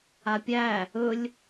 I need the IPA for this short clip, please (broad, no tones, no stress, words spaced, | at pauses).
apʲæ | ɵlʲ